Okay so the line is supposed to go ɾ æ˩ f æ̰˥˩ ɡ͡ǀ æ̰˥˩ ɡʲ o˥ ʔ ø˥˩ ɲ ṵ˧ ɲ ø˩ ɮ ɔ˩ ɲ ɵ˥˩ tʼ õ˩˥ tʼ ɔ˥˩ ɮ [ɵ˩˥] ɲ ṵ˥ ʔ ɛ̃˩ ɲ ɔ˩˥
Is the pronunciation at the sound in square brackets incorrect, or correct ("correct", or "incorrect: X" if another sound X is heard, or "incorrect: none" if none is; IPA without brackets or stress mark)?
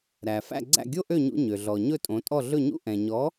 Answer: incorrect: ɵ˥˩